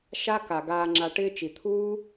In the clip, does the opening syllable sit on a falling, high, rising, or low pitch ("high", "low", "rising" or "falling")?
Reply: high